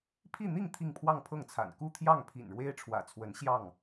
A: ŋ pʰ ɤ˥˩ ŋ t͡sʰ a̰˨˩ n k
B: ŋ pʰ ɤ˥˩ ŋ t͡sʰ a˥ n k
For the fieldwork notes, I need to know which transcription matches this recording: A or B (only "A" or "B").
A